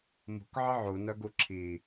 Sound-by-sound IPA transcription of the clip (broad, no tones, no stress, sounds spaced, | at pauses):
m ṳ k ʕ ə ʕ u n œ ɡ u ǁʰ i